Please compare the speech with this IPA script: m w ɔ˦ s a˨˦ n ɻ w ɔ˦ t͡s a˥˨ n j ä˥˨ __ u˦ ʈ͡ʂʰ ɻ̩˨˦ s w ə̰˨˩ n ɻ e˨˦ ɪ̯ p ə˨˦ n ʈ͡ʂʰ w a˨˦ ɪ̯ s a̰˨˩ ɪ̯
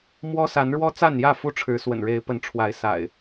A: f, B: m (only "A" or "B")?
A